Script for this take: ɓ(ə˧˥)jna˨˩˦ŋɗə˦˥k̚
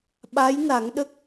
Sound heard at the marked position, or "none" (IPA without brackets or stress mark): a˧˥